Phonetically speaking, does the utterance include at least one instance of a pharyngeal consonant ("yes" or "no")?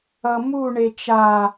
no